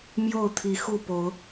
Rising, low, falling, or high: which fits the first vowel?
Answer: falling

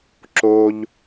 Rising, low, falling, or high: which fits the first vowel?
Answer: high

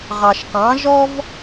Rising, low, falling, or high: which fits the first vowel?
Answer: low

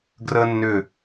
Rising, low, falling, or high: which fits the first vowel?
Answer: high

